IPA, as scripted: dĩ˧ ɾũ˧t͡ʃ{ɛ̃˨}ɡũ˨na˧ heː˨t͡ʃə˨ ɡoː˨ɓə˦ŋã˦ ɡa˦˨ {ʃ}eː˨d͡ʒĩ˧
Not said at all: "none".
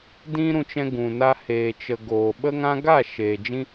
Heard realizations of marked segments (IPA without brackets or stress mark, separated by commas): ɛ̃˧, ʃ